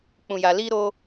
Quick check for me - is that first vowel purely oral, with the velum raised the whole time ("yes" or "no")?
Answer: no